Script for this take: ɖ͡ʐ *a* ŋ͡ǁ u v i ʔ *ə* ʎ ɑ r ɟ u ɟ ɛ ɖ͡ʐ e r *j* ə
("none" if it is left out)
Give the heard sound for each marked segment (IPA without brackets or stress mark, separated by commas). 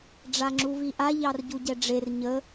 a, a, ɲ